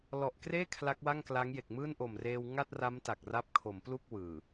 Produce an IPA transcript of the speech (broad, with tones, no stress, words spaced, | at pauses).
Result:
lɔ˨˩ʔkreː˥˩ kʰla˦˥k̚wa˥˩ŋkla˦˥ŋ je˨˩k̚mɯː˥˩nʔo˨˩m reː˧wŋa˥˩t̚ra˦˥m ta˨˩k̚ra˦˥p̚kʰo˩˦m plu˥˩k̚ wɯː˨˩